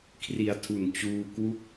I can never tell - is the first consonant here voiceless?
yes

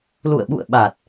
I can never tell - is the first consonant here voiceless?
no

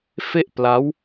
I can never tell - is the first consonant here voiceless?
yes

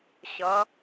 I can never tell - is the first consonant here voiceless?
yes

